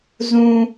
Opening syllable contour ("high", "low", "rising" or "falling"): high